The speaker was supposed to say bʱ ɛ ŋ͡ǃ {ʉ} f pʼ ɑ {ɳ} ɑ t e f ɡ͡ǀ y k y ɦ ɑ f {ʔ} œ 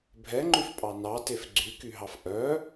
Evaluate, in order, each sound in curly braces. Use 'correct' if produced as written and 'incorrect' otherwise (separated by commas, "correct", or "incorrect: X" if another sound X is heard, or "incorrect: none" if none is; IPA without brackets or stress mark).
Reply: correct, incorrect: n, correct